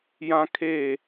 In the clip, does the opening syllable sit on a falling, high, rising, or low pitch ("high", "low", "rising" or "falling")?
high